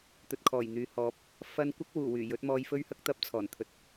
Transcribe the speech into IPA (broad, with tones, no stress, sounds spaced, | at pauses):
t̪ ɵ˨ t̚ kʰ ɔː˨˩ j n̪ yː˨ h ɔː˧ p̚ | f ɐ˥ n kʷ ɐ˥ k̚ w uː˨˩ w yː˨˩ j ɵ˨˥ t̚ m ɔː˧ j f ɵ˥ ɥ h ɐ˥ k̚ t̪ ɐ˥ p̚ t͡sʰ ɔː˨˩ n t̪ʰ ɵ˨ t̚